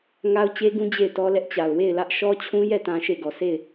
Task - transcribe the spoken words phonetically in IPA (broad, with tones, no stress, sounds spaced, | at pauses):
ŋ a˦ ʊ̯ t͡ɕ e˦ ɡ ũ˦ d͡ʑ e˦˨ ɪ̯ t ɔ˦ l ɛ˦ ʔ t͡ɕ a˨ ʊ̯ w e˦˨ ɪ̯ l ä˦ ʔ ʃ ɔ˦ t͡ɕʰ ũ˦ j ɛ˦˨ t ã˨ ʃ e˦˨ ɡ ɔ˨ sʰ e˦˨ ɪ̯